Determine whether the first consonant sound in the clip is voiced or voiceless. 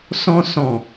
voiceless